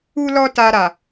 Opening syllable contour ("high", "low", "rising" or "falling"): high